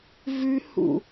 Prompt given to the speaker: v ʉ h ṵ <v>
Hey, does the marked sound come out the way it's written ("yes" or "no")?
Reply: no